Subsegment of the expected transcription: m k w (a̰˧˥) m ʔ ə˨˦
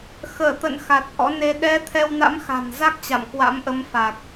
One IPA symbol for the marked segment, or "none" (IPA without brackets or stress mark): a̰˧˥